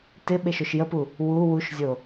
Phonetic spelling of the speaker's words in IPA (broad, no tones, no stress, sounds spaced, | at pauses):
t ɪ ɓ e ʃ o ʃ j ə p u | w u w u ʃ zʲ o